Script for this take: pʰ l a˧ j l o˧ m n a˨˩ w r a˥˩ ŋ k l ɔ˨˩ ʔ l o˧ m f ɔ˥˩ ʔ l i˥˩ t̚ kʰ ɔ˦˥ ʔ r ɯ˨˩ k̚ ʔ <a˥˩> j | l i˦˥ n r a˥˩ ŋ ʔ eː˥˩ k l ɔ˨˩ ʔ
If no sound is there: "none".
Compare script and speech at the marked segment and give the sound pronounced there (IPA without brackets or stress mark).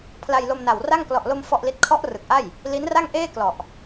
a˥˩